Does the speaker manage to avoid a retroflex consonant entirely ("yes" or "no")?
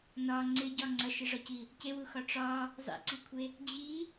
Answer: no